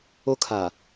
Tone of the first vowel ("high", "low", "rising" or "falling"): high